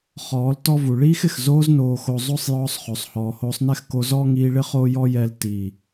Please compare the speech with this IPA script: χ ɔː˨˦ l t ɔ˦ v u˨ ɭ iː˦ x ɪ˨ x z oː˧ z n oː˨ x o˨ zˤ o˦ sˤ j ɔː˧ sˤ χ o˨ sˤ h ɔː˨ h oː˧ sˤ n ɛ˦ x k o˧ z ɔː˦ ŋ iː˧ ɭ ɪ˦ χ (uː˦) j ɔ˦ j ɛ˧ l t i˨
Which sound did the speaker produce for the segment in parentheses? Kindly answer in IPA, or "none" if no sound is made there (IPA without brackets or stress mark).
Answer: oː˦